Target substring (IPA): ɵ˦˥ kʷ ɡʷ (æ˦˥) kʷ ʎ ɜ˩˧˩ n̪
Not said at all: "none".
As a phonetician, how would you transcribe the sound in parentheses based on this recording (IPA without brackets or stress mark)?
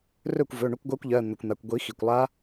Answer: ɜ˦˥